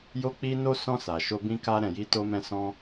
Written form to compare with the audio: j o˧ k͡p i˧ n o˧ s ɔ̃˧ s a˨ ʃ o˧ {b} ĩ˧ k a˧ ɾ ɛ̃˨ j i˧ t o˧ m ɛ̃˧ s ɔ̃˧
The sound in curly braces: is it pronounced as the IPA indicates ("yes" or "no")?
yes